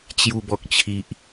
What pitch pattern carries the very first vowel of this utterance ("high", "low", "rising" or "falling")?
low